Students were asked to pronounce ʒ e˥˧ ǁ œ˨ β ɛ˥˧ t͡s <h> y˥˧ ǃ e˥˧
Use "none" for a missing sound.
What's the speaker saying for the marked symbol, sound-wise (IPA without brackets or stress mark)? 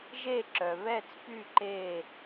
p